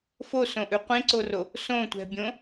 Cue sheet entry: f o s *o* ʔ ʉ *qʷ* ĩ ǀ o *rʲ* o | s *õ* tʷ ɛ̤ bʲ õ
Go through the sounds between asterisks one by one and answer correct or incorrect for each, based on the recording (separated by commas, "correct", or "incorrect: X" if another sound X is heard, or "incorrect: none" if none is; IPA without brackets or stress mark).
incorrect: õ, correct, incorrect: r, correct